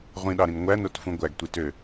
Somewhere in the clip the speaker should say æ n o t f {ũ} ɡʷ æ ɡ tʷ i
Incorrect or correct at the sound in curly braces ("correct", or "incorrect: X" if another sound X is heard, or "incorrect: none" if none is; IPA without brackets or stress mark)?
correct